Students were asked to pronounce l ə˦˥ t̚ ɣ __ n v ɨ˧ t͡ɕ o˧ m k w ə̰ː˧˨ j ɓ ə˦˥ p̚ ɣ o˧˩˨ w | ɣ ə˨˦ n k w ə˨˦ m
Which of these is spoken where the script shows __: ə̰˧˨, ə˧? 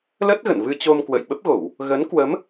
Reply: ə̰˧˨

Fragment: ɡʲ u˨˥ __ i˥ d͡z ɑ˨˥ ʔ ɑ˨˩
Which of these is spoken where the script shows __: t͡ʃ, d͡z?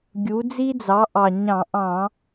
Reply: d͡z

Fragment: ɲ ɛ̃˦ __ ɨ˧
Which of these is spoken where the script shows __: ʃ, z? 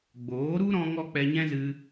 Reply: z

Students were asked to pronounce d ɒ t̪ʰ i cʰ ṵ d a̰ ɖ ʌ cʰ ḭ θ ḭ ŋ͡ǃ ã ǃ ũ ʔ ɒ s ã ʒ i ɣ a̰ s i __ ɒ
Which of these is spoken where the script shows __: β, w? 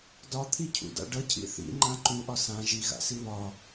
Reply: β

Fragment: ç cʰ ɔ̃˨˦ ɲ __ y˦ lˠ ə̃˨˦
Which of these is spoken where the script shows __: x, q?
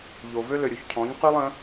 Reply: q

